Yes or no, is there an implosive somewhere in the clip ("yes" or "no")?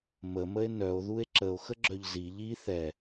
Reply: no